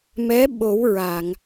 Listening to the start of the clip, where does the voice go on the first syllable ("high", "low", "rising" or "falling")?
rising